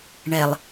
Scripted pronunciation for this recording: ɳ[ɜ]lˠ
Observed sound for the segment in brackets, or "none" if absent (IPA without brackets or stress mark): ɛ